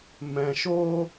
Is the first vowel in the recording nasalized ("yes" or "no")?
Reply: yes